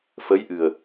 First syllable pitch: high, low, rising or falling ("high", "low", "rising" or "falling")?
rising